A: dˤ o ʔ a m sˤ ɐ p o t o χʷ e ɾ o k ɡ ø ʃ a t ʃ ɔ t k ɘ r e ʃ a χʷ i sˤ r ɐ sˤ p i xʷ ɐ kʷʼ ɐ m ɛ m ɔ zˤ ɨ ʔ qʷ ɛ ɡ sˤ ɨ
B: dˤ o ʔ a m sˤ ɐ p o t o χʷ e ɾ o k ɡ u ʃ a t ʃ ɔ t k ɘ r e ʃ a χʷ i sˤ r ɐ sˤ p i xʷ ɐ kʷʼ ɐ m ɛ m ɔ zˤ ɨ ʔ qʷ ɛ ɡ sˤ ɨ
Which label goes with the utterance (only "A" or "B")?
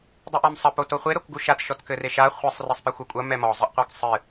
B